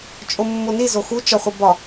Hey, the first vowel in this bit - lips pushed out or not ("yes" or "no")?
yes